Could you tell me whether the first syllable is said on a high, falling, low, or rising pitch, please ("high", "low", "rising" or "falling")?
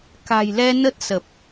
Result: low